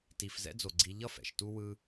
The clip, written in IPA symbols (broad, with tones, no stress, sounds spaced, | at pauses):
t i˩ f z ɛ̰˦ d͡z o˩ ɡ͡ǀ i˨ ʎ ʌ˥ f ɛ̰˩ ʃ t u˦ w ɯ˦